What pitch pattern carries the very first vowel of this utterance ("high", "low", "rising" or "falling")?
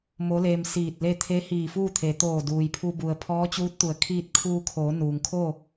rising